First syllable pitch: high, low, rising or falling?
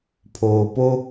low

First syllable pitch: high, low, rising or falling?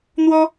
high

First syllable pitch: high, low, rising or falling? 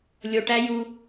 low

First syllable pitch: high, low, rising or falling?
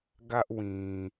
high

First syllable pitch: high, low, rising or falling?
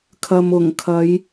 low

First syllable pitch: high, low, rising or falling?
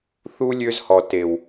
high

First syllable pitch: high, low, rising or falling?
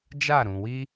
falling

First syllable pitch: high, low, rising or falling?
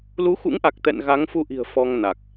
rising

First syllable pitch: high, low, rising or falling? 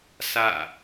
falling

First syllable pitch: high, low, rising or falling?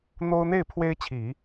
high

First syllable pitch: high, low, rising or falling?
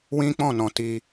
high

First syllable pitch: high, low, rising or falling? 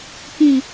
low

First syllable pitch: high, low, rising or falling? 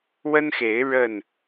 high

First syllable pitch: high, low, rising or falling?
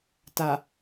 low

